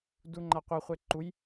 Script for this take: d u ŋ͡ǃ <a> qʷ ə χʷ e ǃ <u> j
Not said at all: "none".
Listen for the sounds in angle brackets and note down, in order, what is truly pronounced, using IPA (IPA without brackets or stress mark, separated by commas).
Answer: a, u